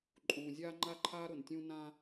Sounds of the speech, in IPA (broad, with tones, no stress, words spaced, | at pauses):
ǃʼũː˨zʲaː˦ŋ͡ǃa˦ǃʰaː˦ ɾʊ˨ntʲũ˦ nã˦